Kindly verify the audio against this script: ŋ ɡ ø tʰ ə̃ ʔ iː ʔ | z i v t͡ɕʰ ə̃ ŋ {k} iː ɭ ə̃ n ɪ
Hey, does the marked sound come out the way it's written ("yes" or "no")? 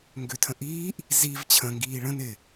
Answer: no